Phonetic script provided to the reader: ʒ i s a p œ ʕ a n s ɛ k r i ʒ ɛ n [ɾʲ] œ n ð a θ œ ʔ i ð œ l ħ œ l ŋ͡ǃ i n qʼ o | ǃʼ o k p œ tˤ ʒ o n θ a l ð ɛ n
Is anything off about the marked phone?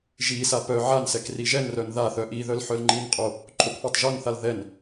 yes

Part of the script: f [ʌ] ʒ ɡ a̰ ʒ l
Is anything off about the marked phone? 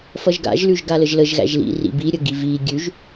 no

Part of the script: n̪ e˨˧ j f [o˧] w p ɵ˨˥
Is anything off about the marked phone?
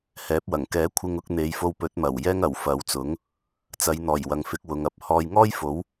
no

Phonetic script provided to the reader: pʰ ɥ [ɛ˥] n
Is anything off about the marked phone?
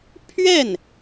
yes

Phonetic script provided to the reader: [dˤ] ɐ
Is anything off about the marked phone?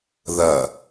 yes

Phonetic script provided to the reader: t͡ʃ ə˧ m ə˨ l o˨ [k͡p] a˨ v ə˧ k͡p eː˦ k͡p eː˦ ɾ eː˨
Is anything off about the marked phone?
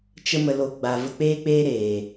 yes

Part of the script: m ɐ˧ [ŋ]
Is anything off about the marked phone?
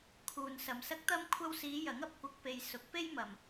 yes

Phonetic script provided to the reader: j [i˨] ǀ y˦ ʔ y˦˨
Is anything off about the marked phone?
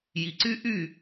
no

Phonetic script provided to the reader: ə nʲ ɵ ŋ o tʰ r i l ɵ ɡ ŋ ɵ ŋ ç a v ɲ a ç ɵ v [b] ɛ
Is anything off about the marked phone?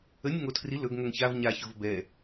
no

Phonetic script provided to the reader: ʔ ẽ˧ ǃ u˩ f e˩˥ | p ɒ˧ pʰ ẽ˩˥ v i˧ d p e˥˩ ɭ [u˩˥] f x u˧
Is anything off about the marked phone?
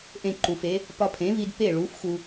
no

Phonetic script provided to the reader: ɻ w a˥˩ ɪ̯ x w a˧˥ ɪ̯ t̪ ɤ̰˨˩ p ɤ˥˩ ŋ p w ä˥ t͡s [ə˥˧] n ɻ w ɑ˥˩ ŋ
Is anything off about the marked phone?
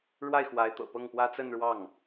no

